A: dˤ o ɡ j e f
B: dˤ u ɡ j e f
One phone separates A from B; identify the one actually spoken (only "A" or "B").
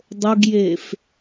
A